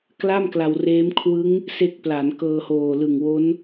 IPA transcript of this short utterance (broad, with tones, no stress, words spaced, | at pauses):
kla˥˩mkla˧wreː˦˥m kʰwɯ˦˥ŋ | se˦˥k̚pla˩˦n kɤː˧hoː˨˩ lɯ˨˩ŋwo˦˥n